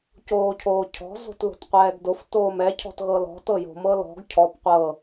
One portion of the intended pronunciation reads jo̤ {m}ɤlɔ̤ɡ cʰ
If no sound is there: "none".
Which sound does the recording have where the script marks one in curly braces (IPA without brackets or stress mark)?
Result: m